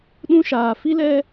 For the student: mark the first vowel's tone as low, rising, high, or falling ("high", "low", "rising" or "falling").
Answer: high